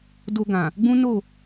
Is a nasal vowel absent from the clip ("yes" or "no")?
no